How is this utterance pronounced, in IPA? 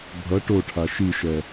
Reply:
bʱ ʌ ʈ o ʈʰ a ʃ i ʃ ɛ

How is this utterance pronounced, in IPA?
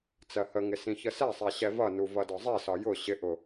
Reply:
t͡s ɜ h ə ŋ ɪ s ĩ ç ə s ɛ sˤ ɛ ɕ ɛ v ʌ n u v ʌ d ɒ zˤ i s ɒ j ʊ ɕ ɪ ʔ ʊ

